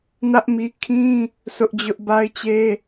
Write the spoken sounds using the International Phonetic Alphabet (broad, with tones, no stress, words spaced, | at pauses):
nä˦ʔmi˦ kʰĩ˦ | sʊ˦ʔd͡ʑʊ˦ʔ ba˦ɪ̯t͡ɕe˦